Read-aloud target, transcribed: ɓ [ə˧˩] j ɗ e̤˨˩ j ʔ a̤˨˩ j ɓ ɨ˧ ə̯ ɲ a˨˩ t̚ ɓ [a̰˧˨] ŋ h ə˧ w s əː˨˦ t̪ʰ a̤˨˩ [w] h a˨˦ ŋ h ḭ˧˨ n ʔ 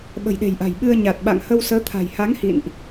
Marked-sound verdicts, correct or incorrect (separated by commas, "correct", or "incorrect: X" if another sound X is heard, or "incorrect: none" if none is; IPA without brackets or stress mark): incorrect: ə̤˨˩, correct, incorrect: j